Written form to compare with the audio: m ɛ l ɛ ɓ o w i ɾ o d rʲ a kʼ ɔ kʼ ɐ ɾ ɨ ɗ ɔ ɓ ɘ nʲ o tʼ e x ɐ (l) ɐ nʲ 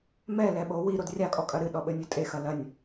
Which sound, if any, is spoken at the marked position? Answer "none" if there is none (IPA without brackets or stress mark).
l